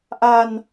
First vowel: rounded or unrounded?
unrounded